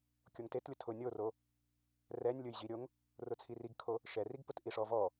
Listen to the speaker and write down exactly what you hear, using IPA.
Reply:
kʲ o ŋ t e t lʲ ʊ tʰ ʊ nʲ o r o | r ɛ nʲ lʲ ʊ j ʑ i ɾʲ o ŋ | r ʊ t͡sʰ i r i ɡ kʰ o | ʃ ɛ r i ɡ p ʊ t ʔ i ʂ ɔ v ɔ

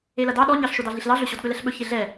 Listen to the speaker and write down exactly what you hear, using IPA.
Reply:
e l ɐ d ɑ ɗ ɔ ɲ ɑ ɬ ʃ o d ɑ ɮ i ɬ l ɑ ɮ ɵ ɕ ɔ d ɠ ɵ l ɛ ɬ ɓ ɵ ç e ɮ ɛ

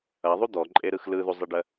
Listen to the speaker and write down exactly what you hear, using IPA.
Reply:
ɐ ðˤ u d̪ ɔ ǃʼ e ɾ ɯ x l ɯ ð u zˤ e ɖ ɜ

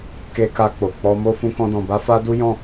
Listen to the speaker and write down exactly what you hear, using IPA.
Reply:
k e˧ k a˧ k͡p o˨ k͡p ɔ˧ m o˦ f ũ˧ k ɔ̃˧ d ɔ̃˨ b a˧ f a˦ d u˦ j ɔ̃˦˨

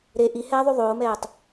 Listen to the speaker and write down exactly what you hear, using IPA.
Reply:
ɾ e ʔ i h ɛː ðˤ y ðˤ oː m ɛː tˤ

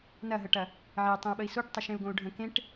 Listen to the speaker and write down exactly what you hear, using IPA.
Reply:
n ɐ ɦ ə ʈ ɐ | ʕ e tˤ ẽ u̯ ɓ ə i̯ s o ʈ tˤ ɐ ʃ ẽ u̯ ɡ õ u̯ ɖʱ ə̃ k ẽ ʈ

